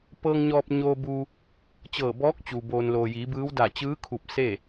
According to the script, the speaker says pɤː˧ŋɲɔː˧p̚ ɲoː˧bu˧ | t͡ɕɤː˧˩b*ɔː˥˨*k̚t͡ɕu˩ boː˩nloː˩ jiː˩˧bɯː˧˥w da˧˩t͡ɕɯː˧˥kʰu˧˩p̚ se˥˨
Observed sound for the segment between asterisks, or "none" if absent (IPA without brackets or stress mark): ɔː˧˥